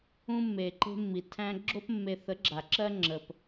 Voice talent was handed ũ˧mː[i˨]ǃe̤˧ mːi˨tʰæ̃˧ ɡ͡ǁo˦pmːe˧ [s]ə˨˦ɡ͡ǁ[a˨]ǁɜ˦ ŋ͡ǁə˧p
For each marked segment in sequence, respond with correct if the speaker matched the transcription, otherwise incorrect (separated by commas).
incorrect, incorrect, correct